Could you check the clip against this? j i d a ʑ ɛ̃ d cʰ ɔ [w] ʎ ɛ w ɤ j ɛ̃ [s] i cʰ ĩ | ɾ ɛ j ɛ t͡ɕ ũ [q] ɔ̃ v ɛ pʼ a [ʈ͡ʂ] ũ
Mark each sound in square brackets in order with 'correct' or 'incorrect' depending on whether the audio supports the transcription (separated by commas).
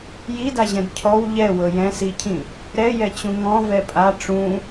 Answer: correct, correct, incorrect, correct